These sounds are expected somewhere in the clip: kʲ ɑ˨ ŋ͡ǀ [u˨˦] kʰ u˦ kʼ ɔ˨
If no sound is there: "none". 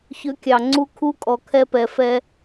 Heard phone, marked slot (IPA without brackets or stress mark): u˦